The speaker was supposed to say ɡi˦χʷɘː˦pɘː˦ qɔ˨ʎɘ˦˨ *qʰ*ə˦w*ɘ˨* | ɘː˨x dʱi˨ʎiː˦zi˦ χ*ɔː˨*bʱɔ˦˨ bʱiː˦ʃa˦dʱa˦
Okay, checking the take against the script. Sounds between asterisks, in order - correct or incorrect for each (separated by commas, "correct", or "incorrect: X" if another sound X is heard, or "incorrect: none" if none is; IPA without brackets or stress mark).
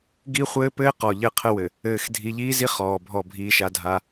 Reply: correct, correct, correct